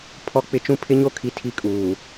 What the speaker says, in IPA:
pʰ ɔ˦ k͡p ɪ˦ t͡ʃ ũ˦ pʰ ɪ˦ ɲ o˦ kʰ i˨ tʰ i˦ kʼ uː˨

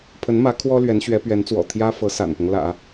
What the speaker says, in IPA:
pʰ ə˧˥ n m ä˧˥ kʰ w ɔ˥ l ɥ ɛ˧˥ n ɕ ɥ ɛ˧˥ p ɥ ɛ˧˥ n t͡s w ɔ̰˨˩ t̪ʰ j ä˥ f ɤ˧˥ s a̰˨˩ n p ʊ˦ ŋ l ä̰˨˩˦

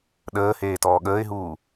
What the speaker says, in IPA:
ɗ əː h eː t ɔː ɠ əː ɪ̯ ɦ uː

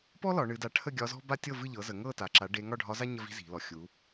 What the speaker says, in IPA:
p ɔ˥ l ɒ˩˧ ɳ ɨ˩˧ d a˩˥ ʈʰ ə˥˨ ɡʲ ɒ˧˥ z ɔ̤˥ b a˥ tʲ ɤ˥˨ v ɨ˥˨ ʎ ɤ˩˥ z ə˩˧ ŋ ɤ˥˨ t a˩˧ ǁ a˩˥ ɖ e˧˥ ŋ ɒ˥˨ ɖʱ ɒ˧˥ z a˥ ɲ ə˥ v i̤˥ z i̤˩˧ l ɔ˩˧ xʲ u˩˧

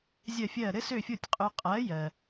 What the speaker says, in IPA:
zʲ ɜ˥˩ fʲ ɜ˥˩ ɾ ɘ˥ s ø˥˩ fʲ o˥˩ tʲ qʼ ø˧ qʼ ɜ˩˥ j ɜ˩

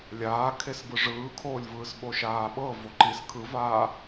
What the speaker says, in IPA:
lʲ aː kʰ e s b ɯ ʐ ɯː kʰ oː lʲ v ɯː s ɓ o ʃ aː ɓ ɤ v o ǃ i s kʰ ɯ v aː

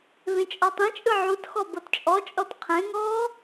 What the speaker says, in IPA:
v ẽ t͡ʃʼ ɔ tˤ ẽ t͡ʃʼ ɯ ʕ u t x ɔ b ɤ t t͡ʃʼ ɔ t͡ʃʼ ɔ t qʰ ẽ ŋ ɔː

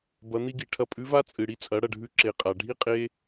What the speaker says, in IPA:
b ɐ˧˥ n̪ i˥ ɡ i˩˧ ʈʰ ɐ˧ pʼ ʉ˧˥ v a˥ t͡sʼ ɨ˩ ɽ i˧ t͡sʼ ɐ˩˧ ɽ ɐ˩ ɖʱ ʉ˧ ǁ e˩ qʼ a˩ ɖʱ i˥ qʼ e˧

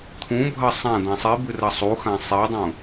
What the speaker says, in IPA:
t̪ʰ ũ bʱ ɐ sˤ ã d̪ ã sˤ i b ɨ r ɐ sˤ u x ã sˤ e dˤ ũ

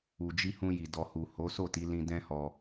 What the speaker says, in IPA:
u˨ d͡ʒ i˧ h ũ˧ j i˨ d ɔ˨ h u˨ h o˨˦ s o˦˨ t i˨˦ l ĩ˧ d ɛ̃˦ h ɔ˧

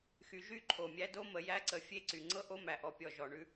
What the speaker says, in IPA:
x y˨ ʒ y˦˨ ǃʰ o˨ mʲ æ˦ d o˦ m ə˨ j æ˦ ǀ ə˨ fʲ e˦˨ ǀ y˨ ŋ͡ǀ ɤ˦ ʔ o˦ m æ˨ ʔ ɔ˨ pʲ ɔ˨ ʒ ɔ˨ ɳ ʉ˦

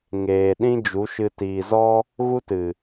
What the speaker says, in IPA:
ŋ eː˨ ɗ ĩ˦ d͡ʒ u˨˦ ʃ ɨ˧ t iː˨ z ɔ˦ | ɣ u˦ t ɨ˨

